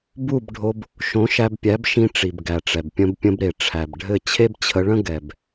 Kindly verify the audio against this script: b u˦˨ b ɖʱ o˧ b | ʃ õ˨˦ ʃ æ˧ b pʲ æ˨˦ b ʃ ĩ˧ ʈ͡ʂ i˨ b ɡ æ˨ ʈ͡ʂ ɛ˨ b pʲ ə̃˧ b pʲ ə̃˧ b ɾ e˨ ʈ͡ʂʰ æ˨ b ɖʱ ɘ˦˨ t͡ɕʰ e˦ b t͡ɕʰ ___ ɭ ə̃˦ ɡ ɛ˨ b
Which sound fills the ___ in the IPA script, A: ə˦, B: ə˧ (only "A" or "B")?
B